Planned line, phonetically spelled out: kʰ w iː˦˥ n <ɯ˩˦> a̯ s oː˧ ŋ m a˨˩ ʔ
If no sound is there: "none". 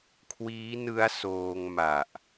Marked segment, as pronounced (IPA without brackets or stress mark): ɯ˦˥